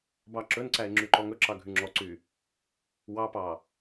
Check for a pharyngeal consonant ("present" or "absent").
absent